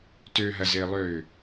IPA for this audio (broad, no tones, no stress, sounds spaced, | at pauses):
t ø ɦ ɐ z ɪː lˠ øː